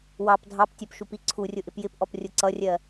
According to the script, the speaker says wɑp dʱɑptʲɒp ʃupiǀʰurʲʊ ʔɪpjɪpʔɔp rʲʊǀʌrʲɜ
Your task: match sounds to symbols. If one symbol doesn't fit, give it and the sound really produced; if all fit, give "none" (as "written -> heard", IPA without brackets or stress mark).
none